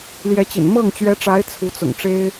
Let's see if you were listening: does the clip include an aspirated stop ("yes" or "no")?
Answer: yes